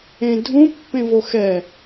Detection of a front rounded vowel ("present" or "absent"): absent